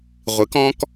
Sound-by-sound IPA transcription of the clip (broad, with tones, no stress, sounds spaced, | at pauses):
ʁʷ ɨ˩˥ k ɔ̃˥ k